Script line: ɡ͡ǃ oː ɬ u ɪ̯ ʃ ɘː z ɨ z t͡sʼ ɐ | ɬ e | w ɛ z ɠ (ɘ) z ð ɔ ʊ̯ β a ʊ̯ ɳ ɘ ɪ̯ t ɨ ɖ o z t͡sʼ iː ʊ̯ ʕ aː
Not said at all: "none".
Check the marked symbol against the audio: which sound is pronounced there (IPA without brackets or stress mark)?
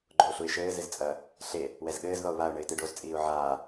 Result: ɘː